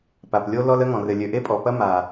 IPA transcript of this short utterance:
p a˨ p lʲ o˦ l ɔ˦ l ə˦ ŋ ɔ̃˨ r ɘ˨ lʲ ø˨ ʔ e˦ pʼ ɔ˨ p ɐ˦ m a˨

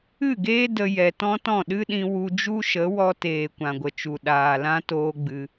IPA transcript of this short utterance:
ɨ˦˨ ɡ eː˦ d ə˧ j ɛ˨ t ɔ̃˦ t ɔ̃˦˨ ɗ ɨ˦ ɗ ĩ˧ w u˧ d͡ʒ u˦ ʃ ə˨˦ w ɔ˧ t eː˨ kʷ ã˨ ɡʷ ə˨ t͡ʃ u˨ ɗ aː˨ l ã˦ t oː˦ ɡ͡b ɨ˧

